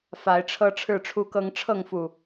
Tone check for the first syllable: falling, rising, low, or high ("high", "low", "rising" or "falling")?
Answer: rising